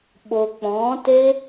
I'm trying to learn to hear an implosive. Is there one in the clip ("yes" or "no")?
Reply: yes